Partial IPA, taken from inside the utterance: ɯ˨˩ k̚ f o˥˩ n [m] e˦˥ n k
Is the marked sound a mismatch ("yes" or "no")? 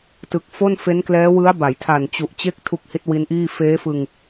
yes